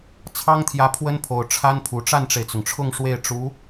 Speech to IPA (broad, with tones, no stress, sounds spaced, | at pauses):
t͡sʰ ɑ˥ ŋ t̪ʰ j ä˧˥ pʰ w ə˥ n pʰ o˨˩ ʊ̯ ʈ͡ʂʰ a˥ n pʰ u˨˩ ʈ͡ʂ a˥˩ n ʈ͡ʂ e˩ ɪ̯ t͡s ʊ˩ ŋ ʈ͡ʂʰ ʊ˥˧ ŋ ʂ w e˥˩ ɪ̯ ʈ͡ʂ u˧˥